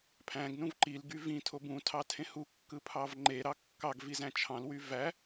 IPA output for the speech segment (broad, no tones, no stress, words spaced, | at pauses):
pʰæ̃ɡ nũvǃil ɡyvĩ tʰobũ tʰɑtʰẽhu kːɯpʰɑvŋ͡ǃe ɾɑkːɑɡ vizæ̃t͡ʃʰɑ̃l wyvæ